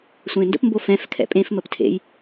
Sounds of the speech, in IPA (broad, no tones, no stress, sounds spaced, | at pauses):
sʷ ẽ n d ə̰ p m b o f ɛ̃ f kʰ ɛ̰ pʼ ẽ f m ə p tʰ ḛ j